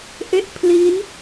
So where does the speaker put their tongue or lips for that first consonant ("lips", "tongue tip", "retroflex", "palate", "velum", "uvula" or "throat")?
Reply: throat